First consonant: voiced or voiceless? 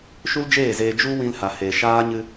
voiceless